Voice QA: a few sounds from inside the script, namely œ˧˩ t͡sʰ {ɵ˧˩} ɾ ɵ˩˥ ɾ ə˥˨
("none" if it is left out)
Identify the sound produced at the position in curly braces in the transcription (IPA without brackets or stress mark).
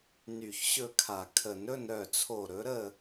o˧˩